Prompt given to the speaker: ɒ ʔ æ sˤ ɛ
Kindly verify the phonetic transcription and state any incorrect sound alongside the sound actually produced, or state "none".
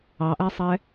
ɒ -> ɑ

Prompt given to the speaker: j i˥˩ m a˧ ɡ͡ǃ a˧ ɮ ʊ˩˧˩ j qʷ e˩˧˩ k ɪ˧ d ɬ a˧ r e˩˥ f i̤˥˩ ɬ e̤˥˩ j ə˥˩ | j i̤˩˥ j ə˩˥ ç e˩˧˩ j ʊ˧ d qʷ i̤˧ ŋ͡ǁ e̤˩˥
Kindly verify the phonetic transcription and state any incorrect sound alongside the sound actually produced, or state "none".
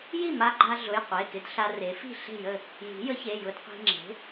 none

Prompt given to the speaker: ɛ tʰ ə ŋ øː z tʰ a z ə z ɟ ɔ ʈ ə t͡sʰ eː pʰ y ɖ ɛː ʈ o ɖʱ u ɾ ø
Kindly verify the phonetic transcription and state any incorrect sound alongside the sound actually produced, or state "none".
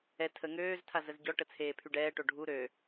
none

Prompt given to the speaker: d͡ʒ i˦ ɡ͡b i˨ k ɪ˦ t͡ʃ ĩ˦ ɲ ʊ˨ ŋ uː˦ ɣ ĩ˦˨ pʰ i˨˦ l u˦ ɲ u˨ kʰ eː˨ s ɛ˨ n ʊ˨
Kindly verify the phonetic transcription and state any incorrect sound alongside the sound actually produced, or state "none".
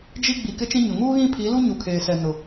none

